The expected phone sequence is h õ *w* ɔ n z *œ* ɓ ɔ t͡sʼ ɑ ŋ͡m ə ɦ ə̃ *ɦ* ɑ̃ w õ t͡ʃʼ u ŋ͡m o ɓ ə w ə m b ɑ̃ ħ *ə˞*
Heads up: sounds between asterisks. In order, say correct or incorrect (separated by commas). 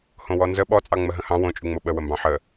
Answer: correct, incorrect, incorrect, incorrect